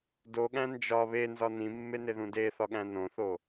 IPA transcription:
d o ɠ æ̃ n d͡ʒ ɒ β e n z ɒ n ĩ mː e n e ð ũ d e θ ɒ ɠ æ̃ n õ θ o

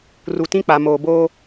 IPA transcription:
r u˨ t ĩ˦ k͡p a˨ m oː˨ b oː˦

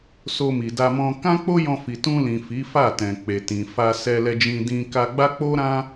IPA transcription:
s o˧ m i˨ d a˧ m ɔ̃˧ k ã˦ k͡p o˦ j ɔ̃˧ f i˨ t ũ˧ l ĩ˨ f i˨˦ f a˦˨ t ɛ̃˨ k͡p e˨ t ĩ˨ f a˧ s ɛ˧ l ɛ˧ d͡ʒ ĩ˧ d ĩ˧ k a˧ ɡ͡b a˦ k͡p o˦ ɾ ã˦

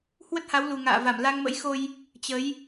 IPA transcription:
h w ə˦˥ t̚ h a˨˦ w l u˨˩ ŋ a̰ː˧˨ v a˧˩ m l a˧ ŋ m ə̰˧˥ j x o˧ j | t͡ɕ ə˨˦ j

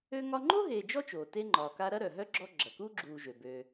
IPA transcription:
ø˥ ŋ ɒ˥ ŋ͡ǃ o˥ ɦ eː˨ d͡ʒ ɔ˦ t͡ʃ oː˩ t e˦ ŋ͡ǃ ɒː˩ k a˦ ɾ ɐ˥ ɾ œ˩ ɦ œ˥ ɡ͡ǁ ɔ˦ ɡ͡ǁ ɐ˩ k uː˥ ɡ͡ǁ uː˨ ʒ ø˩ b ø˨

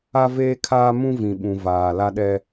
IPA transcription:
a˦ v eː˦ kʰ aː˦ m ũ˦ v ĩ˨ ɓ ũ˨ v aː˨ l a˦ ɗ ɛ˦

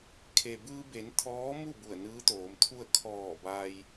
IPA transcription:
kʰ e˩ b ɯː˧ b e˩˧ n t̪ʰ ɔː˧˥ m u˥˨ b u˧˩ ə̯ n ɯː˧˥ t̪ oː˩˧ m t̪ʰ u˥˨ ə̯ kʰ ɔː˧˩ b a˧ j

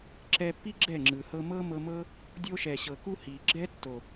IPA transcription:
ǁ ɛ˧ pː i˦ ɡ͡ǁ ɛ˦˨ ŋ͡ǁ ɯ˨ h ɤ˧ m ɤ˦ m ɤ˧ m ɤ˦ | dʲ o˧ ʃ ɛ˨ ɕ ɤ˨ k u˧ h i˨ ɡ͡ǁ ɛ˦ tː o˨

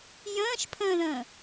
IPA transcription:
j ə̃ː ʃ pʰ ə̃ː ð ə̃ː

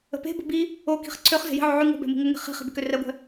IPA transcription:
ə̤ p e̤ b ə̤ b i | o k i̤ χ ǀʰ ø χ z e̤ j i̤ ʕ o ʕ y ŋ o̤ b ɛ̤ m i̤ ŋ ə ŋ e̤ χ i̤ χ i̤ b e̤ k ø r ɛ ɡʷ ɛ̤

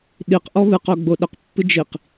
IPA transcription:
ɗ i q ʔ ɔ β ɨ q o ɡ͡b o ɗ ə q pː ɨ d͡ʒ i q

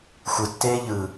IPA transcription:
xʷ ɯ tː eː ʎ ɯ

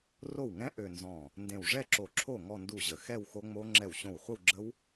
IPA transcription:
r o˥˩ w ŋ ɛ̃˦˥ ʔ ø˥˧ n z ɔ̃˥˩ | n d ẽ˧˩ w ʐ ɛ˥˧ ǁ o˧˩ ǁʰ o˥˩ ŋ ɔ˥˧ n d u˥˩ ʑ ə˧˩ x ɛ˥˧ w x o˦˥ ŋ͡m o˦˥ ŋ͡ǁ ɛ˥˩ w ɕ õ˥˩ w χʷ ə˥˧ w ɡ͡ǁ ə˦˥ w

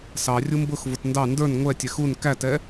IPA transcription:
s ɑ rʲ u m b ʊ x v ʊ t n d ɑ n d ə˞ n ŋʷ ɛ tʲ ɛ x u n k æ t ɛ

